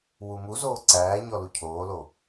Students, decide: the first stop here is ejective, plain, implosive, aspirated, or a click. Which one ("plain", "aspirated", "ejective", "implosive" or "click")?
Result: click